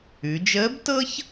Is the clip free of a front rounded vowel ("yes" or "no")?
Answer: yes